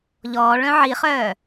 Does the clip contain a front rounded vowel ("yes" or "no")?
yes